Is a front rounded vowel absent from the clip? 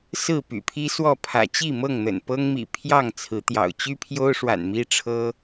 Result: no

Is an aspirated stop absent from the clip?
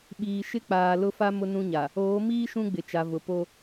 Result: yes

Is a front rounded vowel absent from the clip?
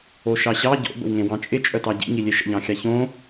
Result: no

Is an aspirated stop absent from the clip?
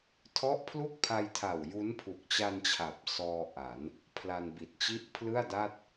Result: no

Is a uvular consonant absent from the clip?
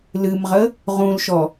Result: no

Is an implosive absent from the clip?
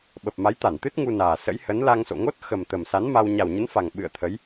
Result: no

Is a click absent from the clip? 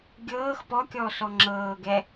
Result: no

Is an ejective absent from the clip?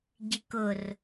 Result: yes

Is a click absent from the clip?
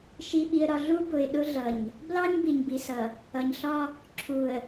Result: no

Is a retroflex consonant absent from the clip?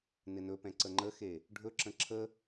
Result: no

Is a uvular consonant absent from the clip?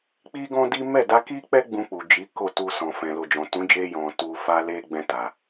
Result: yes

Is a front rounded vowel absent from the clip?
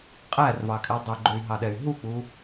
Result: no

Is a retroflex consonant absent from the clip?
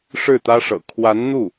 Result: no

